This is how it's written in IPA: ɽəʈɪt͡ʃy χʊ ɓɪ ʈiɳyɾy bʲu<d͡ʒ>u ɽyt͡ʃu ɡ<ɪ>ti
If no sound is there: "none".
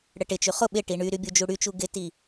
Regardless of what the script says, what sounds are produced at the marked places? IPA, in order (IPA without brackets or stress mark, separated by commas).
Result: d͡ʒ, ɪ